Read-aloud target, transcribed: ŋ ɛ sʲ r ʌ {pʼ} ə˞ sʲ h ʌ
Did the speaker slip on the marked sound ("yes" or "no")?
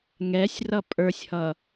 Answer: no